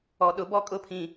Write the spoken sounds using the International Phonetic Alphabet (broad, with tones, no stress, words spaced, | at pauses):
ɔ˨ɗʊ˨˦ bɔ˦kʼʊ˦pʰĩ˨